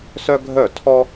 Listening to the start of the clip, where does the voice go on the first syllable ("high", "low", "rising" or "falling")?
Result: high